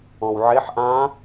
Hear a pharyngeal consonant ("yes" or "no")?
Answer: yes